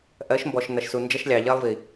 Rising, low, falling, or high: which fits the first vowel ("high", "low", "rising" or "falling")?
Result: rising